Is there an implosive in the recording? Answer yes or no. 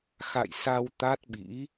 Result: yes